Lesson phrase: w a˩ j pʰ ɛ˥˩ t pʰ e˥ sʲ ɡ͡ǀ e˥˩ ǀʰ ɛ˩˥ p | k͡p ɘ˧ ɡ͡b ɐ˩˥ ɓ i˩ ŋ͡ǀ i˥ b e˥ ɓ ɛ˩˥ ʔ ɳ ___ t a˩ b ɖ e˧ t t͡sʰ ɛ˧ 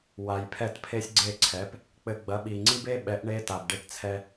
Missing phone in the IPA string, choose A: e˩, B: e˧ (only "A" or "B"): B